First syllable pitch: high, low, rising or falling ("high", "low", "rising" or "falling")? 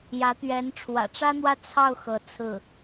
rising